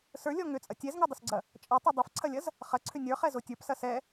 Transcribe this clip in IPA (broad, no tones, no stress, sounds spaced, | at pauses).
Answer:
s ə˞ lʲ ɔ ŋ ʏ t͡sʼ ɐ tʲ ɛ z ŋ ʌ dˤ ʏ s ɡ͡ǀ ɐ | t͡ʃʼ ʌ tˤ ʌ dˤ ɐ f ǀʰ ɐ lʲ ɐ z | χ ɐ ǀʰ ʏ nʲ ə˞ χ ɛ z o tʲ ə˞ p s ɐ s ɛ